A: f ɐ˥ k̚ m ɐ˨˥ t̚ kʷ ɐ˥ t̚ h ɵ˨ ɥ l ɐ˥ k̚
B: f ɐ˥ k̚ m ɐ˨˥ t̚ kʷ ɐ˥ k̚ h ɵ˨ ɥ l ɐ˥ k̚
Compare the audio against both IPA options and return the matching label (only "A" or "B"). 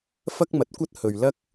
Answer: A